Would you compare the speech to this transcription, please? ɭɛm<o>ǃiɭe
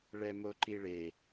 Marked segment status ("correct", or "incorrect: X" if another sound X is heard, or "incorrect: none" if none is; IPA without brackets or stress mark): correct